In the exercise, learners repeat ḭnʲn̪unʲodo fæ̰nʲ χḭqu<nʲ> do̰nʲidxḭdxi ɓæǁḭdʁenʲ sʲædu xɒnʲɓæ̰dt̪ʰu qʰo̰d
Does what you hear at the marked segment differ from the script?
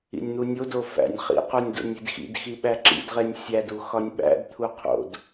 no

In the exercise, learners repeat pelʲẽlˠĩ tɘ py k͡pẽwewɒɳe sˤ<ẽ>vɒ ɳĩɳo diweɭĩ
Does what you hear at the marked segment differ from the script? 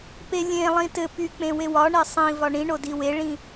yes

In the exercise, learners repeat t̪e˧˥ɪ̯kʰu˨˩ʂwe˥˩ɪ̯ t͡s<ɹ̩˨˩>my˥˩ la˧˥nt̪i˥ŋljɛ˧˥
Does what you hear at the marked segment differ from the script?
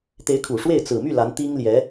no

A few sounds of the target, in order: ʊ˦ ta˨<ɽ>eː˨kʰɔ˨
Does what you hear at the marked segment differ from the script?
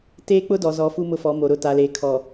yes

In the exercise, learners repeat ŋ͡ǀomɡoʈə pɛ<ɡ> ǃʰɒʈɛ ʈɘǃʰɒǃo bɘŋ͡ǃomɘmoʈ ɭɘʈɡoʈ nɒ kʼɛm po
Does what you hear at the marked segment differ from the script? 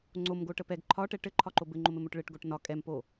no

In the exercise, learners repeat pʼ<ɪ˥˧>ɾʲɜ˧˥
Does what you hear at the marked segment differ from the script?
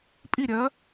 yes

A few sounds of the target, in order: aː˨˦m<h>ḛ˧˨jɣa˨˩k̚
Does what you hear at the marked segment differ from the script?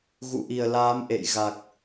yes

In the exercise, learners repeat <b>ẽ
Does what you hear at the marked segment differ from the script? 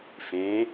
yes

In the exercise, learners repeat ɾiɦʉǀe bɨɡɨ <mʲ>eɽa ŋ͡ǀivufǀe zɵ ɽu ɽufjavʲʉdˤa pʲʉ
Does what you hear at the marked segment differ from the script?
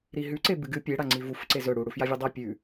yes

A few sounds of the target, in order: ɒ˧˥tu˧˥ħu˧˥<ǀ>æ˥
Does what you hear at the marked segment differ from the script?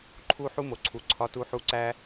no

